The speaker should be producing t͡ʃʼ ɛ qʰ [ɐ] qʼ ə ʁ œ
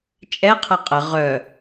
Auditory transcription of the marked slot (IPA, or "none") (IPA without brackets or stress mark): ɐ